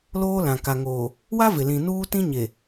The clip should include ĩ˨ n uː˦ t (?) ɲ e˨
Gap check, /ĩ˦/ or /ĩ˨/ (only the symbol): ĩ˦